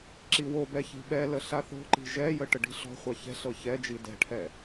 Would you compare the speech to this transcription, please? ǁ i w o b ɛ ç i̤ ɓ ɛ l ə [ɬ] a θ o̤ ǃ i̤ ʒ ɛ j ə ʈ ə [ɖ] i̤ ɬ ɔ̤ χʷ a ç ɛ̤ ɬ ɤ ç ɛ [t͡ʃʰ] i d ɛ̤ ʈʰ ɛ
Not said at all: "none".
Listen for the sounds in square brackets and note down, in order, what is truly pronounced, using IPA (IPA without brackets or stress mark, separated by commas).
ɬ, ɖ, d͡ʒ